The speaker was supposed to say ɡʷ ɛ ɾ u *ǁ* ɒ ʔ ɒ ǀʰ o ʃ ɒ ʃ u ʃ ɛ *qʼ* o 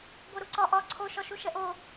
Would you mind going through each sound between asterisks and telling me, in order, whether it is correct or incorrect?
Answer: incorrect, incorrect

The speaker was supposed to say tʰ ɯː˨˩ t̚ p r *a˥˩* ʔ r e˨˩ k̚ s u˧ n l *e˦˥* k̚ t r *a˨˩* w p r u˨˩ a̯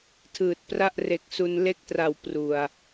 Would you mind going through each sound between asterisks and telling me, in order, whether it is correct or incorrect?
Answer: correct, correct, correct

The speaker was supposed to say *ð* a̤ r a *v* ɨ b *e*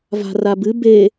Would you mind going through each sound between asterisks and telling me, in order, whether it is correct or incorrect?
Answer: incorrect, incorrect, correct

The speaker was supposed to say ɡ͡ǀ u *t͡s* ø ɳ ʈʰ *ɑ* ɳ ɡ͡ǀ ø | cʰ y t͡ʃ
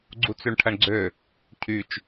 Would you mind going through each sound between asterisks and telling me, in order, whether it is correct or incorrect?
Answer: correct, incorrect

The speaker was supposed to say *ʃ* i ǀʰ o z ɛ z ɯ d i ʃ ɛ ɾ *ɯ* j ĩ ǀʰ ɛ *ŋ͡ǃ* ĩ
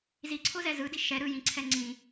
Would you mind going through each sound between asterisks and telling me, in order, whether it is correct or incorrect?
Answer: incorrect, correct, incorrect

